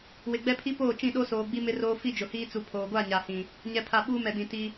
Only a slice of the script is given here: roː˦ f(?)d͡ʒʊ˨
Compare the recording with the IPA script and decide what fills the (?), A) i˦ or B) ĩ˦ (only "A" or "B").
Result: A